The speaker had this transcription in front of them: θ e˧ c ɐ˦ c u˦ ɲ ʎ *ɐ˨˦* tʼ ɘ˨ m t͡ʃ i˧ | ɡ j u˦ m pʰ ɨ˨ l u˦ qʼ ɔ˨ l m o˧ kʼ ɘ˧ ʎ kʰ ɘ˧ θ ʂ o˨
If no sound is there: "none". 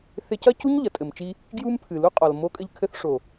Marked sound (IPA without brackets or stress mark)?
ɐ˨